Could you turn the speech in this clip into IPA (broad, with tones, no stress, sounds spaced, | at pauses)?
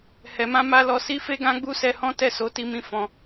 h ɛ˨ m ã˧ m a˧ l ɔ˧ s i˦ f e˦ ɡ ã˦ ɡ͡b u˦ s ɛ˧ h ɔ̃˦ t ɛ˦˨ s o˨˦ t i˧ m ĩ˧ f ɔ̃˧